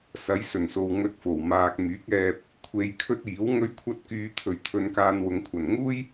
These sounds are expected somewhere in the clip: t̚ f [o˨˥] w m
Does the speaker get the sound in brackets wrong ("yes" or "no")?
yes